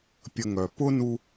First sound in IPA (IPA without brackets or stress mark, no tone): pʲ